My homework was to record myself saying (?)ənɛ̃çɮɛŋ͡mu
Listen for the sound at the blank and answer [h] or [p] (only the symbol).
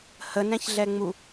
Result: h